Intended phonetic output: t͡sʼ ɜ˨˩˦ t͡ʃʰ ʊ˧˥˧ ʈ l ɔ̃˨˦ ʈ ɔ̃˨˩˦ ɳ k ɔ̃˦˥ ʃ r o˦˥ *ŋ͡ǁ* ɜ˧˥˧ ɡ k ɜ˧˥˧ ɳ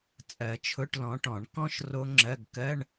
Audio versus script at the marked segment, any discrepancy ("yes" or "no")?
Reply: no